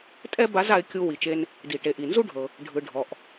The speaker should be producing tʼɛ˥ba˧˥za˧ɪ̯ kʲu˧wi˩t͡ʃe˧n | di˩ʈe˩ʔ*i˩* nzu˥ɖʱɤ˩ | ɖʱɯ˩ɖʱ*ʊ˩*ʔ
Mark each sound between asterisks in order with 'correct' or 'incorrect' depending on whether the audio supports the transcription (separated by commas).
correct, incorrect